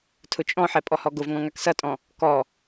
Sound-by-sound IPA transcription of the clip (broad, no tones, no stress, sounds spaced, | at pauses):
tʰ ʊ t͡ʃʼ ɔ̃ ħ ɛ pʼ ɔ h ɔ ɡ ʊ v ŋ ɔ̃ ŋ a k s ʌ tʼ ɔ̃ | k ɔ